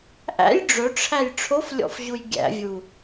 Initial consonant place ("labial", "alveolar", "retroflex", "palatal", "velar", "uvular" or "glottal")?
glottal